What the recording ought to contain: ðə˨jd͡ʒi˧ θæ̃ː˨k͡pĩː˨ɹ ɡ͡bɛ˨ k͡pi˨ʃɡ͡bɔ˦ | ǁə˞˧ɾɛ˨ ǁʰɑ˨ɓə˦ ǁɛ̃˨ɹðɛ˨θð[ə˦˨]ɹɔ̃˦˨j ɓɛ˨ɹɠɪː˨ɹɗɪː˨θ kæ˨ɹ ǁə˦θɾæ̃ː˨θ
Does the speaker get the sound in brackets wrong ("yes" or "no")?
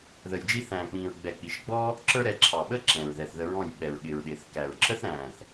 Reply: yes